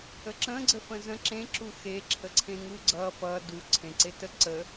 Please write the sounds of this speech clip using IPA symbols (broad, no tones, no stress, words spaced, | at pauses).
əǁə̃ ɡ͡ǀəfə̃zə̃ ǁẽǁu xeǁʰəǀʰẽ ŋuɡ͡ǀʌ fʌ du ǀʰẽǀetə ǀə